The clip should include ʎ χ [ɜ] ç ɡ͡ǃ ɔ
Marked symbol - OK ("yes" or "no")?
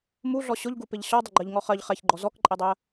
no